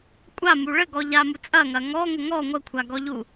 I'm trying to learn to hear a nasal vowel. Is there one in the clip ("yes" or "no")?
no